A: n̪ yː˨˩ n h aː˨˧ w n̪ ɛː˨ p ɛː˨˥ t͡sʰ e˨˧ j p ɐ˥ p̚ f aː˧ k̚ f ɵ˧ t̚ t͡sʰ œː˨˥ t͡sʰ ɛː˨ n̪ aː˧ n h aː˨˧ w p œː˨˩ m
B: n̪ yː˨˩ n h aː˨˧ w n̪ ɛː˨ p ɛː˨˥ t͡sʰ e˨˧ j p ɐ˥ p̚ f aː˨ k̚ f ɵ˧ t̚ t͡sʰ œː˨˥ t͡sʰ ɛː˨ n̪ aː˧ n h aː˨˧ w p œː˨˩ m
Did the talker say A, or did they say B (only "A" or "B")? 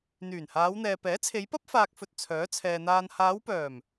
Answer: A